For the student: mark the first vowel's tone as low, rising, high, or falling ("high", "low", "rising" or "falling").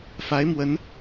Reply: rising